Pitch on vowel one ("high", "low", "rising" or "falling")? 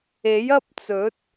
rising